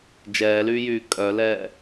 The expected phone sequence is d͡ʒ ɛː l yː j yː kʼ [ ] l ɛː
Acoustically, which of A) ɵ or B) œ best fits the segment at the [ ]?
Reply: B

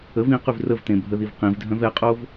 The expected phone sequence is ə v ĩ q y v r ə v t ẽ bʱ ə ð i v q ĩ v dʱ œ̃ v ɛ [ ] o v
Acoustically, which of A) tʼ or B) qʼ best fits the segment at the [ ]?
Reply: B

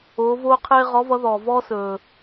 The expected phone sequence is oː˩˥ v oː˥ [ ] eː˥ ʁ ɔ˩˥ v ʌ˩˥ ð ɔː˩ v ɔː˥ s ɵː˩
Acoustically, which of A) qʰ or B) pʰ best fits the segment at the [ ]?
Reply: A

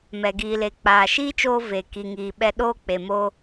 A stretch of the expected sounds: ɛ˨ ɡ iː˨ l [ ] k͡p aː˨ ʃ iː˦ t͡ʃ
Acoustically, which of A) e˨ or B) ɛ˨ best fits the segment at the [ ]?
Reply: A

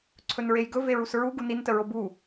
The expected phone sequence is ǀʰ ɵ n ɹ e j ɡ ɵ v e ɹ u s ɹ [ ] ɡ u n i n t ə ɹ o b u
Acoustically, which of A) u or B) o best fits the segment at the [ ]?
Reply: A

